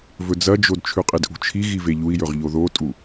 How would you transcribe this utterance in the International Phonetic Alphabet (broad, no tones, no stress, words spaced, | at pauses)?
vɵd͡zɐd͡ʒod t͡ʃʰʉqʼidʔṳt͡ʃʰi ɣiveʎui̯jɵʁ ʎoðotʼu